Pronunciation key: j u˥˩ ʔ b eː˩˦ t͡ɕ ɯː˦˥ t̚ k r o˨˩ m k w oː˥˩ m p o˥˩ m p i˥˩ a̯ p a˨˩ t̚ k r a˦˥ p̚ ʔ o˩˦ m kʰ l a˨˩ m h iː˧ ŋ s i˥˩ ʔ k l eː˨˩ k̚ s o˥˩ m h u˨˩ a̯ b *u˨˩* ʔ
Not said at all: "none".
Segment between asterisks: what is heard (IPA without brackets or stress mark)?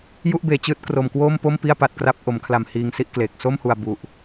u˨˩